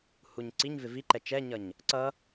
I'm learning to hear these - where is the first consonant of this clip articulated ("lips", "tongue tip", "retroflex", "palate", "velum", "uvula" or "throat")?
throat